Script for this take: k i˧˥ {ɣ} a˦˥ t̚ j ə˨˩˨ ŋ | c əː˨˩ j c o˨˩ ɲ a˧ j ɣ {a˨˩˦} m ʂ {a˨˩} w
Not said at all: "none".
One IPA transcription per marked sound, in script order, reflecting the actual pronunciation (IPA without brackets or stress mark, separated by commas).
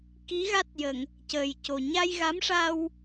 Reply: ɣ, a˧˥, a˧